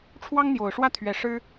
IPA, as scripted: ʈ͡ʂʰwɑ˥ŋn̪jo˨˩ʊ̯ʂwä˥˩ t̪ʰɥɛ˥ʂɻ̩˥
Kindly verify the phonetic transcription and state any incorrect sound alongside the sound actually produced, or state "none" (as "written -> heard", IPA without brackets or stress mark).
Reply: ɛ˥ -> ɛ˧˥